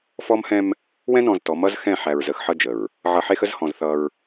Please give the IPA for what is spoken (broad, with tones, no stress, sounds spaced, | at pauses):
f ɔ˦ m h ɛ̃˦ m | w ɛ̃˦ n ɔ̃˨ z t ɔ˨˦ m ʌ˦ z x ɛ̃˦˨ ħ æ˨ ɹ z ə˨ x ħ ʌ˦ d͡ʒ ə˨ ɹ | ʕ ʌ˨ ħ e˦ x ə˦ z h ɔ̃˨ z θ ʌ˦ ɹ